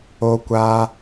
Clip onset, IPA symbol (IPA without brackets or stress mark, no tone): o